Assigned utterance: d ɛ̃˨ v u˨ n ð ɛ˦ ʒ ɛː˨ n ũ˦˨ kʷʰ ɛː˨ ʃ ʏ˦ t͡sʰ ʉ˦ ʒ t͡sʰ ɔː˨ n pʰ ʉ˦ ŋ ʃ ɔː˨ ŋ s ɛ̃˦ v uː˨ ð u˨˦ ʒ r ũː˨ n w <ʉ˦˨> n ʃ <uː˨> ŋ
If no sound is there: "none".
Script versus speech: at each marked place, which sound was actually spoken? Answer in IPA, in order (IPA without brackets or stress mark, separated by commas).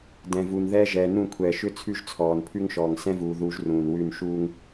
ʉ˦˨, uː˦